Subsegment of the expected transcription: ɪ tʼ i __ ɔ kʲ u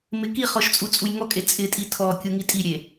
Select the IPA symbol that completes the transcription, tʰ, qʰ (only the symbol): tʰ